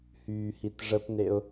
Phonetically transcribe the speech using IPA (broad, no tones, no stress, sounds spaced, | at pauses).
h yː h i t ʐ ə p n e ʊ̯